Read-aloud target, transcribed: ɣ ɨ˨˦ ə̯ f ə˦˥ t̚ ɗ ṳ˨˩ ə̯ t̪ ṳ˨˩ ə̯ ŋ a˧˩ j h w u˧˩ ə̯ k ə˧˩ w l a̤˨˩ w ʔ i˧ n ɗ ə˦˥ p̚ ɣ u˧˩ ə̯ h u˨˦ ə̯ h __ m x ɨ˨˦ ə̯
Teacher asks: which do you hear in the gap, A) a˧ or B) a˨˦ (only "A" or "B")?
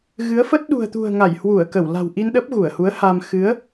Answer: A